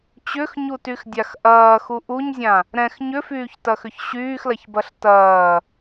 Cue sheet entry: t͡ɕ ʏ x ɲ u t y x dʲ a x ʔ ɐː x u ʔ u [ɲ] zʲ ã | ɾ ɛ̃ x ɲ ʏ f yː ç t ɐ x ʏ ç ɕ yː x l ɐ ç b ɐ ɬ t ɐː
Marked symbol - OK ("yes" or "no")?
yes